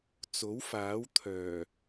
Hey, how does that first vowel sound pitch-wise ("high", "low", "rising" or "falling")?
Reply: rising